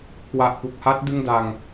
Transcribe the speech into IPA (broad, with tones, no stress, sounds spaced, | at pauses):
k w a˨˩ ʔ p u˨˩ k̚ h a˦˥ t̚ d ɯ˥˩ ŋ d a˧ ŋ